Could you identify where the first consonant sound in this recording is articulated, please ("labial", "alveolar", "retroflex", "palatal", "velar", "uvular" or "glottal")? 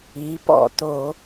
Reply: labial